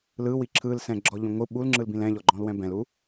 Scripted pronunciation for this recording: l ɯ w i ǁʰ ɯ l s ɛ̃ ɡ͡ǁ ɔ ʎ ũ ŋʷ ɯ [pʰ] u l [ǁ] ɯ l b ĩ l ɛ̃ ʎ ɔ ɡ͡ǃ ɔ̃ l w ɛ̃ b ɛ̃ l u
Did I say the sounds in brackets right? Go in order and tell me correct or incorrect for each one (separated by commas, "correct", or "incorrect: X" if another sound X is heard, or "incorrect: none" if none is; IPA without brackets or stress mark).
incorrect: ɓ, incorrect: ŋ͡ǁ